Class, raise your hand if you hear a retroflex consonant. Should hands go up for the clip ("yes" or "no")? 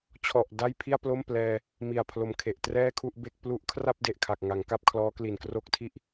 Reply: no